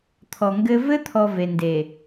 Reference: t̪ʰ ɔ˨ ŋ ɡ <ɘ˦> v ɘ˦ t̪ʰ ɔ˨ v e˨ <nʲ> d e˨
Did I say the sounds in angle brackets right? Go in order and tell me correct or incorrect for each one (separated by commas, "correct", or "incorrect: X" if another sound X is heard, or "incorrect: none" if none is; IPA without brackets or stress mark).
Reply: correct, incorrect: n